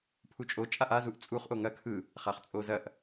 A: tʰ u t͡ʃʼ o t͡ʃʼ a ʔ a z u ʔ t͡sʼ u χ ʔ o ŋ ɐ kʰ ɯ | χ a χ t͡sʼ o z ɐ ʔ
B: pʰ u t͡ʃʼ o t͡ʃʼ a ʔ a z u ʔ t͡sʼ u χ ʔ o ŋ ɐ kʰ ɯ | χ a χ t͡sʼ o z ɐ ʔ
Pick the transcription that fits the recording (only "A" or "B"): B